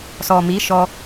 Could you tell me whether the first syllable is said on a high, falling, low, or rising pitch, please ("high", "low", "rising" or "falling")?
low